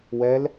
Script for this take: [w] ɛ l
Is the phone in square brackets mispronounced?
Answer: no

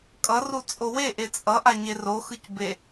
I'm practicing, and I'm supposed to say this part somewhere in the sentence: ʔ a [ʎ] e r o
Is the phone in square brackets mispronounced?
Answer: yes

